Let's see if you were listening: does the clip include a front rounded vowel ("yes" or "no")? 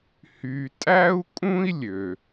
yes